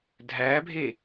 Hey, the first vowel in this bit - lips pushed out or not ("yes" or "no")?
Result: no